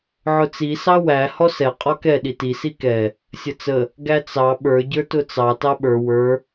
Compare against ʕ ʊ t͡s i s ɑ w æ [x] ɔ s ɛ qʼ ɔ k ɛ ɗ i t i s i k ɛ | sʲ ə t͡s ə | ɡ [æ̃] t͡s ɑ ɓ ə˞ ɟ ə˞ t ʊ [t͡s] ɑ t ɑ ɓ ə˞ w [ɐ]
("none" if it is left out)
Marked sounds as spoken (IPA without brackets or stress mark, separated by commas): h, æ, t͡s, ə˞